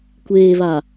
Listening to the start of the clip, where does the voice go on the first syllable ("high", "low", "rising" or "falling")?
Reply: low